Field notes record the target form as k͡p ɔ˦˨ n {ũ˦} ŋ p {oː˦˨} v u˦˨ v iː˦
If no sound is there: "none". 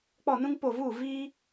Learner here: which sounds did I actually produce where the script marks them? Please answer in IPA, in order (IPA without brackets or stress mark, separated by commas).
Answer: ũ˦, o˦˨